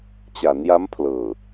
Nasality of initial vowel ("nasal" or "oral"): oral